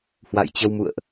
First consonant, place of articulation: glottal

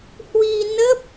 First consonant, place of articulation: glottal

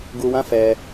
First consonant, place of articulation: velar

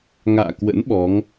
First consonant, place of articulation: velar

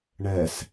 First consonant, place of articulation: retroflex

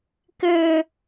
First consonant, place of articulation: velar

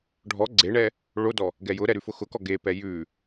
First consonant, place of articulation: retroflex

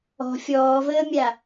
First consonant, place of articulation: labial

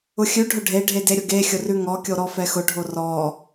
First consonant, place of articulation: velar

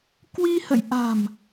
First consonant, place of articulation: velar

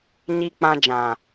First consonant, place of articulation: palatal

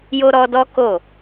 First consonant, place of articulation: palatal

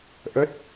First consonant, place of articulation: glottal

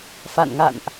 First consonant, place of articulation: labial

